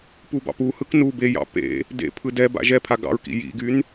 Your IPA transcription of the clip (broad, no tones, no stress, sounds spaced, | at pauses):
p u b ɑ̰ p u h ɯ k n u b e j ɑ̰ p ḛ | d ḛ pʰ ɯ d ɛ b a̰ ʒ ɛ pʰ a ɡ ɑ̰ ɹ k ḭ j ḭ ɡ y n